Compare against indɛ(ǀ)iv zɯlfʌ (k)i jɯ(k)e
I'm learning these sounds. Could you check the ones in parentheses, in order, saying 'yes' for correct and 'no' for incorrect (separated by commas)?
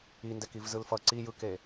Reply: no, no, yes